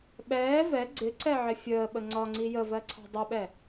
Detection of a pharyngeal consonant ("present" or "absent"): present